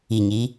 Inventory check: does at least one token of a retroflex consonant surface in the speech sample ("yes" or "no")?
no